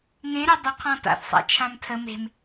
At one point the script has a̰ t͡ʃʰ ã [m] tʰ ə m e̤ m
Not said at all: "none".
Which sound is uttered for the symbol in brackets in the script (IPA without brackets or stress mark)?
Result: m